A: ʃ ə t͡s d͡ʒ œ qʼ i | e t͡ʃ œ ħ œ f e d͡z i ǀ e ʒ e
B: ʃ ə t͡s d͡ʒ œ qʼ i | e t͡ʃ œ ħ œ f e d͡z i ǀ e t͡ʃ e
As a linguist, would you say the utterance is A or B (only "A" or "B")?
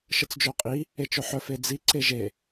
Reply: A